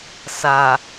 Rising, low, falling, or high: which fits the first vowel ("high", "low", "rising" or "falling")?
low